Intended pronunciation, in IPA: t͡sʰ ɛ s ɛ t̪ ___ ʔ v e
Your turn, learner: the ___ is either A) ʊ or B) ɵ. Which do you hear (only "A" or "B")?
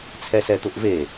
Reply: A